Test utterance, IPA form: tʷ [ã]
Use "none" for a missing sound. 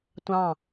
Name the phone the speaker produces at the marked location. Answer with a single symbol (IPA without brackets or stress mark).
ɑ̃